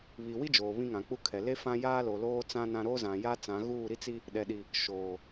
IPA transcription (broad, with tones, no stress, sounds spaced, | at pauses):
β i˨ w i˦ d͡ʒ oː˨ β ĩ˦ ŋ ã˨ k͡p u˦ kʰ ɛ˨ l e˦ f ã˦ j aː˦ l o˨ l oː˦ t͡s ã˦ n ã˦ ɾ oː˦ z ã˨ j a˦ t͡s ã˨˦ ɣ uː˦˨ ɾ i˦ t͡s i˦ | ɗ ɛ˨ ɗ i˨ | ʃ oː˨